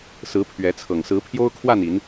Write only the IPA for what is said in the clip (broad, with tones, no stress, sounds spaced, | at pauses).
s ɹ̩˨˦ pʰ ɥ ɛ˨˦ t͡sʰ ɤ˨˩ ŋ s ɹ̩˨˦ pʰ j o˦ ʊ̯ kʰ w a˥˨ n i˨˦ n